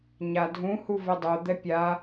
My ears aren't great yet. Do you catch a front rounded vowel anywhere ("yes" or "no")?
yes